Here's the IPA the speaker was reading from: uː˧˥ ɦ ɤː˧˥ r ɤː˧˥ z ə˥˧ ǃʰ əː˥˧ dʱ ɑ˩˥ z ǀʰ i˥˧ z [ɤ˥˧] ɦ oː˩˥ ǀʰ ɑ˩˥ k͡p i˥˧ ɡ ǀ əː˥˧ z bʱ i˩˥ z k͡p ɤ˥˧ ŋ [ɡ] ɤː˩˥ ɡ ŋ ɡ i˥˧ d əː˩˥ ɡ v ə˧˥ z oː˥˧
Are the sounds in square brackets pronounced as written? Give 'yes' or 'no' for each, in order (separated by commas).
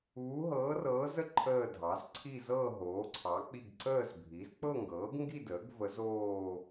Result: yes, yes